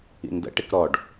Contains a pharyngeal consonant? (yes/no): no